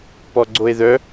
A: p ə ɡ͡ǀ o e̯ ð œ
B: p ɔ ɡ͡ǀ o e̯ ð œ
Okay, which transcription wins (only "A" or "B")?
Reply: B